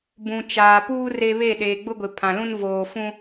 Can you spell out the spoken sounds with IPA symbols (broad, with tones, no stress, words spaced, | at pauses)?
bũ˨t͡ʃaː˨puː˦ re˦ βe˦˨ɗeː˨ ɡ͡bʊ˦ɡʷɪ˨ pʰã˨lũ˦n voː˨fũ˦